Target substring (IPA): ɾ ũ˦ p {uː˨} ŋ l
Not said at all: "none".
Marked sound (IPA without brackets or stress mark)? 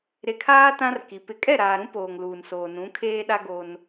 oː˨